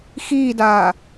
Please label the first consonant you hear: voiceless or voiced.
voiceless